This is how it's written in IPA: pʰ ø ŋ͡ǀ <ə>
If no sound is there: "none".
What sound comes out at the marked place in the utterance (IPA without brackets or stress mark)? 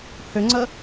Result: ə